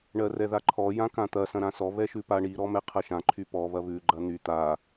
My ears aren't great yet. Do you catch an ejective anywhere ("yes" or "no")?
no